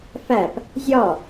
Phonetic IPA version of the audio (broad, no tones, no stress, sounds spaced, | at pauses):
f æ p | zʲ ɒ